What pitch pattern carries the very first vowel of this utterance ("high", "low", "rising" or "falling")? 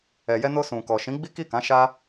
low